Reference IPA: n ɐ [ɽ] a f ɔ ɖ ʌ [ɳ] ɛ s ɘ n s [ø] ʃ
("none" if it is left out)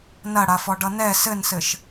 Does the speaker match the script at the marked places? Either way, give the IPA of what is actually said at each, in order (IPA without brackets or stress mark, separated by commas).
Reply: ɽ, n, ɘ